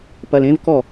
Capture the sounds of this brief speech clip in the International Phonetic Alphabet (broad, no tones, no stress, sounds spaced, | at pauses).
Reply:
p ɐ l ẽ v k ɔ